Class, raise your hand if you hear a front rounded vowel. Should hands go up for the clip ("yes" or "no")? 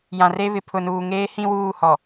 no